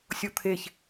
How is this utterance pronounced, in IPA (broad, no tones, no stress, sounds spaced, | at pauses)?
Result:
sʲ o t̪ʰ e ç